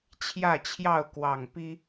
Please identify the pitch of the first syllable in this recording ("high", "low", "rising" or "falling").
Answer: falling